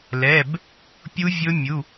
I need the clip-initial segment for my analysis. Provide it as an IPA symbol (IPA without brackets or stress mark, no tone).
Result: l